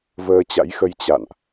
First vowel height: mid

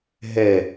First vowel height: mid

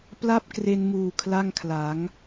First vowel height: low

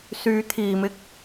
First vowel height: high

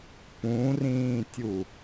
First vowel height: high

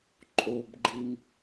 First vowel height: mid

